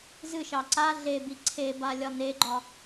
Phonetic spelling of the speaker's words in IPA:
z ɨ ʃ ɑ ǀ a ɮ e b i ǀʰ e b a lʲ ɒ n e ɡ͡ǃ ɒ

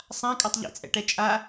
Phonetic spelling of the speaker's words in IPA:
sˤ ã kʼ a tˤ ʎ ḭ t͡sʼ ɛ̰ ʈ ɛ t͡ʃʼ a

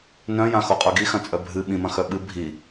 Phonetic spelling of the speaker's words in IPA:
n œ̃ j ã x o qʼ œ ɡ i x ɐ̃ t͡sʼ œ bʱ ɨ ɓ ĩ m ɐ̃ x œ ɓ ɨ bʱ i

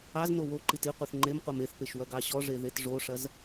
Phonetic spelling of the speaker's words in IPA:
ɑ z n o w o ǃ i t i qʷ e θ ŋ͡ǃ e m qʷ ɑ m e θ p e ʃ w ɐ ɡ ɑ ɕ ɔ ʐ e ð e t ʐ o ʂ ɐ z

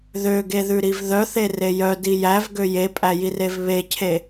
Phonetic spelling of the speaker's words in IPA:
ð ø ɡ e ð ʉ ɾ i v ð œ θ e r e j œ d i j æ v ɡ ø j e pʼ æ j i r e v β e cʰ e

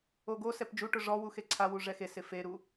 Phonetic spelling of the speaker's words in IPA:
o ɡ o s ɛ p d͡ʒ u ʈ ʊ ʐ ɔ w u x e ǀʰ a w u ʐ ɛ x e s ɪ f e ɾ u

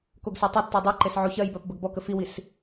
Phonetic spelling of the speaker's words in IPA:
k o ɡ s ə˞ tˤ e tː ə˞ dˤ o ǃ e s ʕ o ç ɜ j b ɜ p b ə ɡ b ɔ k ə f i w i s

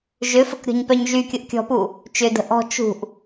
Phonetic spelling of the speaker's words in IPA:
ʒ ʏ f ə k ɾʲ ɔ̤ ɲ p œ ɲ ʒ y kʲ ʊ ʔ kʲ ɔ̤ p u | t͡ʃ ʏ d ə̤ ʔ ɔ̤ t͡ʃ ṳ ʔ

